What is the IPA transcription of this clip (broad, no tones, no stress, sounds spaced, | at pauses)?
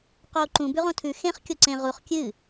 q oː ǃ ũ b ʉ ʁ õ tʰ ʉ x ẽ χ kʲ o ǀ ẽ ʁ u χ kʲ ɨ